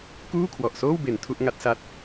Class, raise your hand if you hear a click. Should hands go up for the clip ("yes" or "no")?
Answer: no